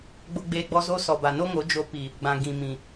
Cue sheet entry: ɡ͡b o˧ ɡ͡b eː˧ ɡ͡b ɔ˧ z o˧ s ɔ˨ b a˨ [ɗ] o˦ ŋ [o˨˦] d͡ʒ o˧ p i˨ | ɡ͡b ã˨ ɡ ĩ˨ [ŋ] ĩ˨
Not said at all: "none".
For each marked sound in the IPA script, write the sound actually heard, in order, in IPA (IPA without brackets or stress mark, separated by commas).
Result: n, o˨˦, m